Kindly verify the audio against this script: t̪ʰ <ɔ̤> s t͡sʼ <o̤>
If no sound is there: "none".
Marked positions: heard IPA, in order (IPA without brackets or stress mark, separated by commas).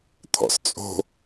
ɔ̰, o̤